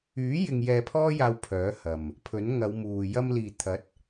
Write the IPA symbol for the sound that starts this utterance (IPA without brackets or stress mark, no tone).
yː